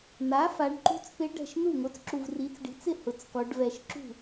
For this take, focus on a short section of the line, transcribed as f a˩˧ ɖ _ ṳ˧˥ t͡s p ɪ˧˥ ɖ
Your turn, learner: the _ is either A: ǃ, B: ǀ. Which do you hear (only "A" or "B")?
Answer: A